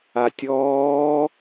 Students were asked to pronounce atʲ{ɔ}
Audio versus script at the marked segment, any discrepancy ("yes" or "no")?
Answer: yes